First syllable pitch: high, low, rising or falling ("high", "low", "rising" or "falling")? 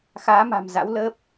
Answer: rising